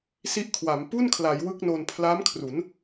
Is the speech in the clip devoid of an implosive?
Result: yes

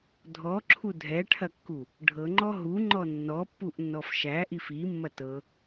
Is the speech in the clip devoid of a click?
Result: no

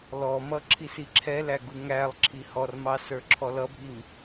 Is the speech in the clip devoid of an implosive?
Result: yes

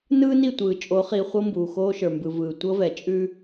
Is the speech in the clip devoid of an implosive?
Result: yes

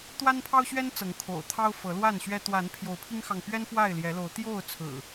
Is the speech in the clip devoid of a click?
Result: yes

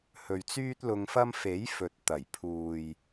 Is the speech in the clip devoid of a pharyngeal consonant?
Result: yes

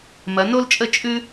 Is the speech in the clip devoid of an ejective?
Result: no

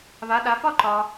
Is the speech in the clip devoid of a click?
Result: no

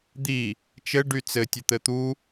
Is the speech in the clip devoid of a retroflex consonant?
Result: no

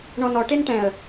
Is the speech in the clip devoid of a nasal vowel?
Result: no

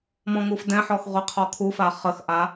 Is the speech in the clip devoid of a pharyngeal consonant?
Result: no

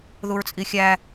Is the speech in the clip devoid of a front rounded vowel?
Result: yes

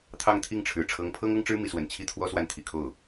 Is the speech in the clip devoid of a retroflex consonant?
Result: no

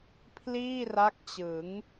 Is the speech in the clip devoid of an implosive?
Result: yes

